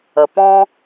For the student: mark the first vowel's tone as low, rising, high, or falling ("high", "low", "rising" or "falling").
low